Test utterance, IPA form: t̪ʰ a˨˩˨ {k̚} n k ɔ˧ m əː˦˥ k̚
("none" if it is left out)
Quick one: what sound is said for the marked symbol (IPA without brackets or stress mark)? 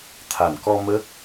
none